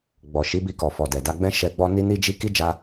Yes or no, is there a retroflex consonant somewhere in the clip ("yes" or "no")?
no